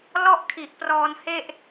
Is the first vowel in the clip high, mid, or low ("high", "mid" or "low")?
mid